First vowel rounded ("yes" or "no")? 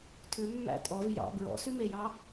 yes